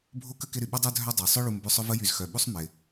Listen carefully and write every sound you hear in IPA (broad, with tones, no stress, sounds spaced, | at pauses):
bʱ o˥ k ə˥ k ɪ˦ ɾ y˩ ɓ ə˥ dˤ œ˥ dʱ œ˥ dˤ œ˩ sˤ œ˥ ɭ u˨ m b ʏ˦ sˤ ʊ˥ v ə˥ j y˨ z x œ˩ ɓ u˥ sˤ m ɪ˩